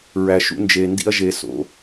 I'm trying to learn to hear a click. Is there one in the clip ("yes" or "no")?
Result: no